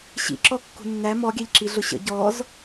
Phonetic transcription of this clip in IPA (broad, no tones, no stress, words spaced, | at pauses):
ɕḭǁɔkːṳ nːæ mɔɡʲæʎǁi ɮʊɕə̰ ɟɔz